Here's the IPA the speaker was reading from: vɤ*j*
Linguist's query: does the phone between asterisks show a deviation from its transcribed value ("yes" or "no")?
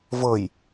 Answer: no